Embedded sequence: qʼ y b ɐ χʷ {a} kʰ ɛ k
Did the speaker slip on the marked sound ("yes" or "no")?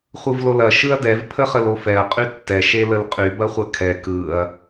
yes